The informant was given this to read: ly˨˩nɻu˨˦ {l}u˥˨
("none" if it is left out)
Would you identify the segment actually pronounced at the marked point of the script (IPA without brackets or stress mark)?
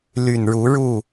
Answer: ɻ